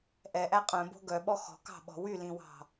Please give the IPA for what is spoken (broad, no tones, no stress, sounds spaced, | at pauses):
ʔ ɛ ʔ æ qʼ œ̃ b o̤ ɡ œ ɓ ɔ x ɔ̤ k ɑ̤ ɓ ɔ̤ w y l ĩ w ɑ̤